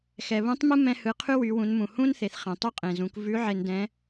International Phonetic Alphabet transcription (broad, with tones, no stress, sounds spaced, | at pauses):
x ɛ˩ β ũ˧˥ tˤ m ɯ˥ m ɛ̃˧ h ɯ˩˧ qʰ ʉ˥ w y˩˧ w ũ˩˧ n m ũ˩ h ũ˥ n θ e˩ θ χ ɛ̃˩ tˤ u˥ qʼ ẽ˩ z ũ˩˧ k v ʉ˧˥ ʕ e˧ n d ɛ̃˧˥